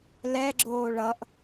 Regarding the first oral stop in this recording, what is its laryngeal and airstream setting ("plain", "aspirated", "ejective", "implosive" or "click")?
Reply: click